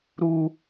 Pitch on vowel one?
high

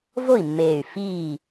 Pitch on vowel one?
falling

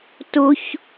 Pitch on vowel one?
high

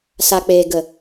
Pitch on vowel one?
low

